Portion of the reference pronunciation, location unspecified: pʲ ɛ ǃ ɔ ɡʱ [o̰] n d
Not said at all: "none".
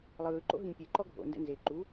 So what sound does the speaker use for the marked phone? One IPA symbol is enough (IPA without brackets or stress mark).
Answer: o̰